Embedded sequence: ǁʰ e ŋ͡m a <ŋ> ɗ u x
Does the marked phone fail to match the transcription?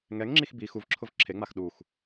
yes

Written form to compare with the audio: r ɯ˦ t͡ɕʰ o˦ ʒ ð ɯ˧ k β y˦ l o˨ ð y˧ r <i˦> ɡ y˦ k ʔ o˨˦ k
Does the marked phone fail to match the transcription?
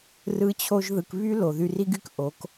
no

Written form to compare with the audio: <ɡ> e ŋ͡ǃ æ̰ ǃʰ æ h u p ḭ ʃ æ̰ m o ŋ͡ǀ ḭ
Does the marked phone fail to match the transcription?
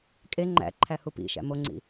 yes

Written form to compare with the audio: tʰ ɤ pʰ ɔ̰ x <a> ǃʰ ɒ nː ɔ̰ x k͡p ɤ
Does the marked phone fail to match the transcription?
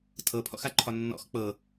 no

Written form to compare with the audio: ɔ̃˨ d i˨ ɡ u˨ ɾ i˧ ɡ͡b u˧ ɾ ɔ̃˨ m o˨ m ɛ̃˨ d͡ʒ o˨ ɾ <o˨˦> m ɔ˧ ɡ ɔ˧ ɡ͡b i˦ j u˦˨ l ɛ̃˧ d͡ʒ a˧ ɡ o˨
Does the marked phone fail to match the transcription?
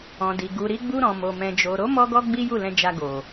no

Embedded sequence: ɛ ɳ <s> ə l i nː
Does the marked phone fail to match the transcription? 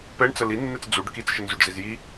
yes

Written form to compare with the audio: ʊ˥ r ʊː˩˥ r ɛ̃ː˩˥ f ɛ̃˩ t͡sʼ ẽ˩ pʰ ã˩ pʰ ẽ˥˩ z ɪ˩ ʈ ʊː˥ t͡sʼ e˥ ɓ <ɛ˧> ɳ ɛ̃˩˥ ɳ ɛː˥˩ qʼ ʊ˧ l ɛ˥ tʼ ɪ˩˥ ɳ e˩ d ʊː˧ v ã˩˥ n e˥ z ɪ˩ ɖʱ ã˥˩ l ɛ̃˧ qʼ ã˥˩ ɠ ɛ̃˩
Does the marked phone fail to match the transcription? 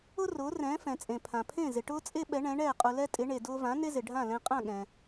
yes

